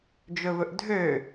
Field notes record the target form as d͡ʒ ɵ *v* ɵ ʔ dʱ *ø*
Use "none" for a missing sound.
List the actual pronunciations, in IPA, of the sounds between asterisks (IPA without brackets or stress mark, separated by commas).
v, ø